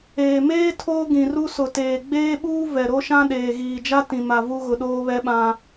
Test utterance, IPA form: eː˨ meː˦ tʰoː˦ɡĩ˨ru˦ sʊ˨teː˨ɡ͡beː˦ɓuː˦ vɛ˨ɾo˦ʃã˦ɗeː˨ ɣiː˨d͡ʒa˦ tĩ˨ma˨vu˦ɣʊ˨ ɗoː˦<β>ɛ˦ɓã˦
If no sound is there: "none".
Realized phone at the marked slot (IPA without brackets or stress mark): β